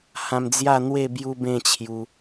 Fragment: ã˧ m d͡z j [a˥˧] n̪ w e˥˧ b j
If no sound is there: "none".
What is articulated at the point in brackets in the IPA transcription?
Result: a˥˧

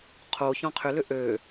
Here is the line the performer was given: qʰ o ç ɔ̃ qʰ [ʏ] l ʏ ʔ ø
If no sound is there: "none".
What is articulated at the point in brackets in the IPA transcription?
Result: ʏ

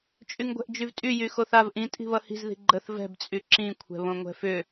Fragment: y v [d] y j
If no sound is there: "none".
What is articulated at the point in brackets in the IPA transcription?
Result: tʼ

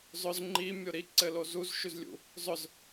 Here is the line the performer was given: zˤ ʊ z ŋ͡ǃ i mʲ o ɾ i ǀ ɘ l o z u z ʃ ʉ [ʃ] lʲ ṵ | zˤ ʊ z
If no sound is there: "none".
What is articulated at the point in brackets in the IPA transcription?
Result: z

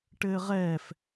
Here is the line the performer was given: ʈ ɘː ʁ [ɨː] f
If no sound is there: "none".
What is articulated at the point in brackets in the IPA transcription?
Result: ɛː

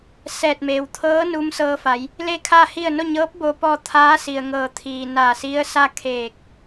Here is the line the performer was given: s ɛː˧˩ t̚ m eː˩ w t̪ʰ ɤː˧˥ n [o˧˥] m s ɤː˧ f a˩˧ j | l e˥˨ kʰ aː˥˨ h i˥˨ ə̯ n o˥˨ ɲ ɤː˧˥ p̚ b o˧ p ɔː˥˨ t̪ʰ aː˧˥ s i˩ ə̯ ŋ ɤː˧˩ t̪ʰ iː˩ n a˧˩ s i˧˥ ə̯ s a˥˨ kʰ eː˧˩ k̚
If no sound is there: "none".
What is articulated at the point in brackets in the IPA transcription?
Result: u˧˥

